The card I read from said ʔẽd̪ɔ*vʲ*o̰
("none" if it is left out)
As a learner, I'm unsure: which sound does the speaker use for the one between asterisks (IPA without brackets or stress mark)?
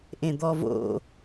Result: v